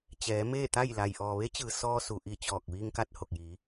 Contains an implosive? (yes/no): no